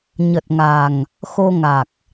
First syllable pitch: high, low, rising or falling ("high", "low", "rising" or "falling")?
low